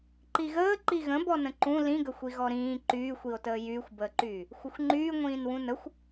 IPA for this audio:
ǃ i ɣ əː ǃ i ɣ ə̃ b ɔ n ə̃ ǃ ũ l ĩ ɡ ə xʷ i ɣ ɔ ɾ ĩː ǃ yː xʷ i o̯ t əː j yː xʷ b əː ǃ yː | xʷ ə xʷ ŋ͡ǃ yː ŋʷ ĩː n w ũ n ə xʷ

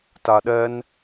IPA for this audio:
t a ɗ ɛ n

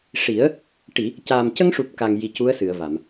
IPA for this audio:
ʂ i˨˩˦ ə̯ | ʈ i˨˩˨ | c aː˨˩ m c ə˧ ŋ ʂ u˨˩ p̚ k a˨˩ ŋ j i˨˩ c u˧˥ ə̯ s ɨ˨˩˨ ə̯ v a˨˩˨ m

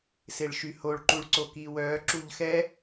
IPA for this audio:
s e ɭ ʃ y h o ɭ ǃ u ɭ ǀ o k iː w œː ǁ u ʎ x ɛ

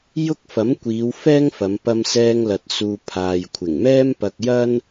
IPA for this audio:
j ʊ˥ k̚ f ɐ˨˥ m kʷ iː˨˧ w f ɛː˥ ŋ f ɐ˨˧ m p ɐ˧ m s ɛː˧ ŋ l ɐ˨ t̚ s uː˨ pʰ aː˨ j kʷʰ ɪ˨˩ ŋ m ɛː˥ m p ɐ˧ k̚ j ɐ˥ n

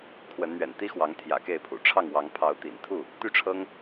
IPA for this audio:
kʰ w ə˨˦ n n̪ ɥ ɛ̰˨˩ n t̪ i˦ x w ɑ˨˦ ŋ t̪ʰ j ä̰˨˩ k e˥˨ ɪ̯ pʰ ṵ˨˩ ʈ͡ʂʰ ɑ˥˨ ŋ w ɑ˨˦ ŋ pʰ ɑ˨˦ ʊ̯ t̪ ḭ˨˩ n t̪ʰ u˥˨ | t̪ y˥˨ ʈ͡ʂʰ ɤ˦ ŋ

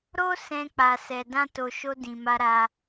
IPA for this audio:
ɾ o˦ s ɛ̃˧ k͡p a˨ s ɛ˨ d ã˧ t o˨ ʃ o˧ d ĩ˨ m a˧ ɾ a˧

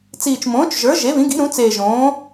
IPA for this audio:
t͡s iː˨˩ t͡ʃ m õː˩˥ t͡ʃ ʒ ə˞˩˥ ʒ e˩˥ β ĩ˩˥ ɡ i̤˩˥ ɾ ũ˩˥ t͡s eː˨˩ ʒ õː˩˥

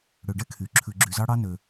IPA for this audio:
ɽ ø˩ ɖ ɛ˧ kʰ y˩ ǁʰ ʉ˩ ɡ͡ǁ y˩ z ɑ˧ ɽ ɑ˧ n ø˩

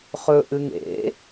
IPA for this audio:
χ ɵ ʔ ɨ ŋ ḛ

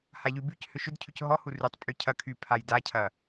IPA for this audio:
h a ʎ y b y c h ʏ ʃ ʏ d cʰ y c ɦ ɔ h u r y tˤ pʼ y cʰ ɐ kʰ y pʰ a j d a cʰ ɐ

